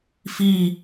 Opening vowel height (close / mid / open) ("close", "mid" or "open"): close